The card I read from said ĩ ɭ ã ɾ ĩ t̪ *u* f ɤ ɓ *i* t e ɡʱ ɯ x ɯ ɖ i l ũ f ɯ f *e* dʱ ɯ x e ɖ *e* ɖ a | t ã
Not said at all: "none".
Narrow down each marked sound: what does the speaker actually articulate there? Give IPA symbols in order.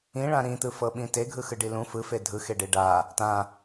ɯ, ĩ, e, e

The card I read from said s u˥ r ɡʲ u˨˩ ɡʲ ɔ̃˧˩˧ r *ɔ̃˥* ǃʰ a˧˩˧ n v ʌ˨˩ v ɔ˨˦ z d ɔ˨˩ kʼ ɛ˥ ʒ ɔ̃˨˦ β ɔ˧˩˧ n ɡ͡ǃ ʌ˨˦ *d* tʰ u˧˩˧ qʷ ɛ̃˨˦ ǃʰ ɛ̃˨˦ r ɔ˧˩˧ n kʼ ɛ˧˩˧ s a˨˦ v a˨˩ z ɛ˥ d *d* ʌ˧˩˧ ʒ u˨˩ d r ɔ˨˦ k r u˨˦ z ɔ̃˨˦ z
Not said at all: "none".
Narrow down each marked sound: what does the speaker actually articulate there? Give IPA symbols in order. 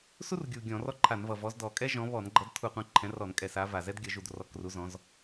ɔ˥, d, ɡʲ

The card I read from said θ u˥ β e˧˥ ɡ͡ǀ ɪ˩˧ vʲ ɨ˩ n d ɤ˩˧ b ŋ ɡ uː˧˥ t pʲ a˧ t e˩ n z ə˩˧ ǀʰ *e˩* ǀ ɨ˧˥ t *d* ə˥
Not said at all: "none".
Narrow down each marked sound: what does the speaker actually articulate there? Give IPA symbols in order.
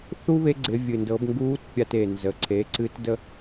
e˩˧, d

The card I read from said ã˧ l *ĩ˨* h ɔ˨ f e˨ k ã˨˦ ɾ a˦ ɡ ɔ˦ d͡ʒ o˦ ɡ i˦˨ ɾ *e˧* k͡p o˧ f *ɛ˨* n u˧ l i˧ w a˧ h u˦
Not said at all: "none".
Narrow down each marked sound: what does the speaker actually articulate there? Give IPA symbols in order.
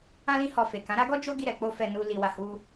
ĩ˧, ɛ˧, ɛ˧

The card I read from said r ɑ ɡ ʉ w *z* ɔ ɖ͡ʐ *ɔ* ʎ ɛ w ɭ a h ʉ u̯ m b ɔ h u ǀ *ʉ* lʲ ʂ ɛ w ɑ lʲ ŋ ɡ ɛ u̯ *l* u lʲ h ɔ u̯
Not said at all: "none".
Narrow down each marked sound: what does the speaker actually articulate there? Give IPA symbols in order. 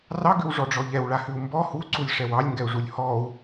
ʐ, ɔ, u, ʐ

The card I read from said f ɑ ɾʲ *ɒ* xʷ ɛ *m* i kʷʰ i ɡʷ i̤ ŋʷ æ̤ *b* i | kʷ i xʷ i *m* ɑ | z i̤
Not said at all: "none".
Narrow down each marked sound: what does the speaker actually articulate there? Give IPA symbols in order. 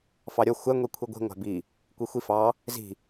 ɒ, ŋʷ, b, f

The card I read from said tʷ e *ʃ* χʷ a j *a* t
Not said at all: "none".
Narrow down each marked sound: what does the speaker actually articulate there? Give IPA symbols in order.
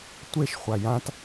ʃ, ã

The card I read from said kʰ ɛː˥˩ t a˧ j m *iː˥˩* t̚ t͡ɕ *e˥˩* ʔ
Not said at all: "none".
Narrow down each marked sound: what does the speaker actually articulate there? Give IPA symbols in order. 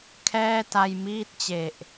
iː˥˩, e˨˩

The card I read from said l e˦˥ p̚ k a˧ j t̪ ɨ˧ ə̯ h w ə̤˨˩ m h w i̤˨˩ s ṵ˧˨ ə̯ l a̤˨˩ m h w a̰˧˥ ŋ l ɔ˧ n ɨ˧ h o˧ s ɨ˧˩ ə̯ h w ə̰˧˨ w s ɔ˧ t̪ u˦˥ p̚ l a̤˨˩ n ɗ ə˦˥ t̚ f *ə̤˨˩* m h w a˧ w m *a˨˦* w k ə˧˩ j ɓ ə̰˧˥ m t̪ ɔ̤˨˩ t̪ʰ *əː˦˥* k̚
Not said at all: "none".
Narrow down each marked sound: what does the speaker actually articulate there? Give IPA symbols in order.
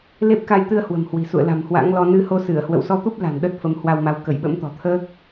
ə˨˦, a˨˦, əː˦˥

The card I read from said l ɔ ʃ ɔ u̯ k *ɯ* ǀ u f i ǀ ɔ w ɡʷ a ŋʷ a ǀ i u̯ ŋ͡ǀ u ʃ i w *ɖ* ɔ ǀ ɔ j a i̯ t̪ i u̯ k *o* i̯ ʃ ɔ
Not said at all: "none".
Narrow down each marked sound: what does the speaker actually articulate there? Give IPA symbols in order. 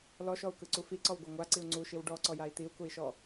ɯ, ɖ, u

